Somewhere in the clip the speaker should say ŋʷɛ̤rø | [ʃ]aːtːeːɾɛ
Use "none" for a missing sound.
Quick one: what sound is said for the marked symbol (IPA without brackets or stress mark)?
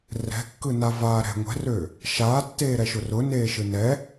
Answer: ʃ